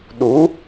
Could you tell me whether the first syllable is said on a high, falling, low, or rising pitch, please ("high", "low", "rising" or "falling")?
rising